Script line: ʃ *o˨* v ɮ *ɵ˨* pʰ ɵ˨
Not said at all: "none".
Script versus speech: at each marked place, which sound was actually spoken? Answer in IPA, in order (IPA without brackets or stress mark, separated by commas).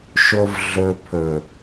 o˨, ɵ˨